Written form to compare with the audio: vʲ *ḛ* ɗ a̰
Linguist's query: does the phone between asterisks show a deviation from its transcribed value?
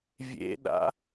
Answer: no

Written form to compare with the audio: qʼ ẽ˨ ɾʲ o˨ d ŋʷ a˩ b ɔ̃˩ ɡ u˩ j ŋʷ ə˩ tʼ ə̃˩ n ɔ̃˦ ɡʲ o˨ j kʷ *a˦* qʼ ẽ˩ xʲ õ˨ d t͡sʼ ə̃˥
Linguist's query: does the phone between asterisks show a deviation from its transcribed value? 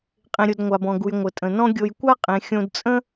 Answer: no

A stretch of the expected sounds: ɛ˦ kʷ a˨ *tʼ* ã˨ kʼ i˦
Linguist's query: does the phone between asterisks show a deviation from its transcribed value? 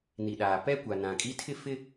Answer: yes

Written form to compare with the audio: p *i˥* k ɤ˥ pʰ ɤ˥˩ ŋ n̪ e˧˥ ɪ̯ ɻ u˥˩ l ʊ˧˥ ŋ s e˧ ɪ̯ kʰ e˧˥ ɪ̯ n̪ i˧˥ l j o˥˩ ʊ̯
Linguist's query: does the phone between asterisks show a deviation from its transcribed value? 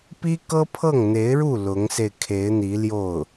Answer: no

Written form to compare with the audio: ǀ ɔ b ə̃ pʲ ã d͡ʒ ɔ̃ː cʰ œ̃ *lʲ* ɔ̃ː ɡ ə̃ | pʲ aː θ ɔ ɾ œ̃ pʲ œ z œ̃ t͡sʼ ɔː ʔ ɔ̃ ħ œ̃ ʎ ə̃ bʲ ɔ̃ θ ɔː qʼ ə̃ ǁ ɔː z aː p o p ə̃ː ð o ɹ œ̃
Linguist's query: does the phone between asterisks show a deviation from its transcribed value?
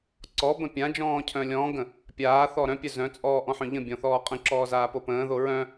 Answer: no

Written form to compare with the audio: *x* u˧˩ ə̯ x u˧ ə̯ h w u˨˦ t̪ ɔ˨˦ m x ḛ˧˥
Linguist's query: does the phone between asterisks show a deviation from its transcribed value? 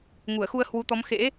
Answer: yes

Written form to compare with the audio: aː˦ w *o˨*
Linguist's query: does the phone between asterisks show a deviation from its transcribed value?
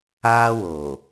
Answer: no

